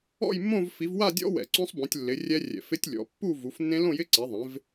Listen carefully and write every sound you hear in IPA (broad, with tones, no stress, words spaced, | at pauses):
ɔ̰˥˧jmːõ˥˧v fi˨˦vwa˥˧dʲɔ̰˦˥ wɛ̰˧˩˧ǀõ˦˥sˤbõ˨˦tʲlːɪ˨˦ rʲɛ˦˥rʲɛ̰˧˩˧fɪ˦˥tʲlʲɔ̰˨˦ pːu˥˧vu˨˦fnːẽ˦˥ lõ˥˧jɪ˦˥ǀɛ˨˦ðˤẽ˨˦v